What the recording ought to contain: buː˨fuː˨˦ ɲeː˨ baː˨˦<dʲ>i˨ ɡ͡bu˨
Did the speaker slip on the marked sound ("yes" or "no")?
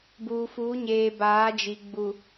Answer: yes